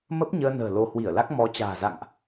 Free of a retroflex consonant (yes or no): yes